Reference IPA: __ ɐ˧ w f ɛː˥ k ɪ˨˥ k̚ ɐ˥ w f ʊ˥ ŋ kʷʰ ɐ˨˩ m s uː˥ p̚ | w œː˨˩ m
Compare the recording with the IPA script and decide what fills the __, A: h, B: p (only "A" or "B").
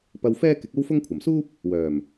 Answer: B